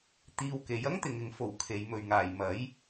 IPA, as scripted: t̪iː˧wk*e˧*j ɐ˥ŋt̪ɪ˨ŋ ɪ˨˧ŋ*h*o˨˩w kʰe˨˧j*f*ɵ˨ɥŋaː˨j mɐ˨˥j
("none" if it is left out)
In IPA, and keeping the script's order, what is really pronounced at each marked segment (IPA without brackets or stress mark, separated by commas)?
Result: e˨˥, f, m